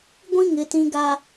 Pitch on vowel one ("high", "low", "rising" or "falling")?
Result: high